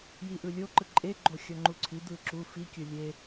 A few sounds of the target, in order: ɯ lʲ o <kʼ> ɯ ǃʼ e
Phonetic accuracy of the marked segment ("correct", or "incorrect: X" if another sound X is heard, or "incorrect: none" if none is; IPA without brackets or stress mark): incorrect: ǃ